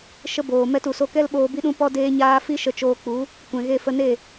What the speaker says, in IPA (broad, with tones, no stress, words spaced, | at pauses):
ʃə˦boː˨ mɛ˧tu˨so˧kɛ˦l ɓoː˧bi˦ɗũ˦ pɔ˧ deː˦ɲaː˦ fi˦ʃə˧t͡ʃoː˧k͡pu˨˦ | kʷɛ̃˧ɣe˦ fə˧ne˦˨